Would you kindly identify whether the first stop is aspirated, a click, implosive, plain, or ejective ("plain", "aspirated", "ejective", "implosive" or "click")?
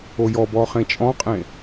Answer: plain